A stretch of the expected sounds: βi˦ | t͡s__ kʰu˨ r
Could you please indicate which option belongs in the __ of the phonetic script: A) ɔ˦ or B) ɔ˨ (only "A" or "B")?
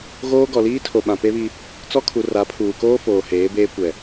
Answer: A